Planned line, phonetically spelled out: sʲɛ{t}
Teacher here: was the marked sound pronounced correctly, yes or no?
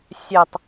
no